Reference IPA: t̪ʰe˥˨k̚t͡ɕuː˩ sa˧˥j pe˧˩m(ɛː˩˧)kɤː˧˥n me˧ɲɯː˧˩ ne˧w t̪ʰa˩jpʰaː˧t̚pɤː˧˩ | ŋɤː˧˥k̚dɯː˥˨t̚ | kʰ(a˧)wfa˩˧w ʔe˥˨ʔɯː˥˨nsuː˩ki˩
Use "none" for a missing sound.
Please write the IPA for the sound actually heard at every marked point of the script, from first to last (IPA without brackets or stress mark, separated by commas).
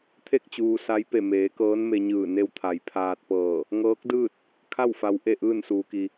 eː˩˧, a˥˨